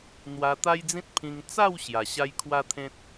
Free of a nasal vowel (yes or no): no